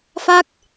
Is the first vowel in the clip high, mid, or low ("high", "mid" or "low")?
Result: low